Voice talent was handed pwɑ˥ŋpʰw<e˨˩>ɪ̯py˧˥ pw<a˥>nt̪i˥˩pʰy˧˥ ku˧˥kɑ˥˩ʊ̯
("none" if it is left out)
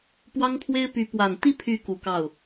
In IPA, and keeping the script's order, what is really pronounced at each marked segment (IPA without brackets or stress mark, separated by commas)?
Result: e˥, a˨˩